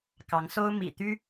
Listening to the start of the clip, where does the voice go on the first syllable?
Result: rising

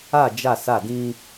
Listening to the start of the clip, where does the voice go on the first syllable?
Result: falling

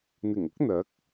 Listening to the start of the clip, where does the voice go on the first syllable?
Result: low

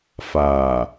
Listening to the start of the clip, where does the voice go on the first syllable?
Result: low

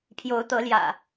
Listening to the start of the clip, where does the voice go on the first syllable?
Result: rising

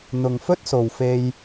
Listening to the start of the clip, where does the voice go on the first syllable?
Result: low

